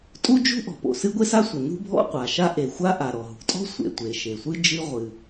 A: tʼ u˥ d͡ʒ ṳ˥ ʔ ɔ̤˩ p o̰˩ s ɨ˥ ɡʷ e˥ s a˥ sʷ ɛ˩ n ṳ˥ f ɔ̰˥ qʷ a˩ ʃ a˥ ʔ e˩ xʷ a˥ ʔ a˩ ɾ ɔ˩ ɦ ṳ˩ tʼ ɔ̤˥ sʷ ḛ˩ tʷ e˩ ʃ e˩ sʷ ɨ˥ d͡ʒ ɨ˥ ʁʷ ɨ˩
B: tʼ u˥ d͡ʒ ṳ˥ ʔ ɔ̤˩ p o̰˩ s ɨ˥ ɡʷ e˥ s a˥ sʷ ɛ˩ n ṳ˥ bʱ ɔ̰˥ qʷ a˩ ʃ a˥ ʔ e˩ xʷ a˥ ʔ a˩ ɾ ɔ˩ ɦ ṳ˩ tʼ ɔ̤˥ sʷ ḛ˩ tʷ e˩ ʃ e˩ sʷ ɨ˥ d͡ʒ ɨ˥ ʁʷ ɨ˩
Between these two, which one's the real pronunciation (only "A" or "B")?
B